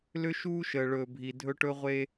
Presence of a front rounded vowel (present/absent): present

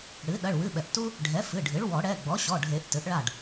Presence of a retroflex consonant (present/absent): present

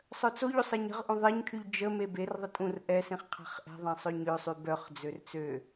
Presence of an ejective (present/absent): present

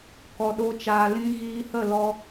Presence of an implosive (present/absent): present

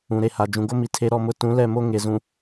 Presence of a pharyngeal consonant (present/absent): absent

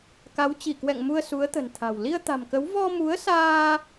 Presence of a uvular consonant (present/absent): absent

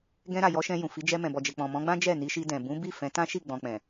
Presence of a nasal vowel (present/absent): present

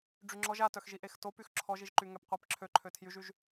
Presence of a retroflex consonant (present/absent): present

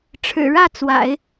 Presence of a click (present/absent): absent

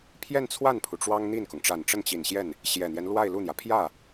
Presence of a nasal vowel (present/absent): absent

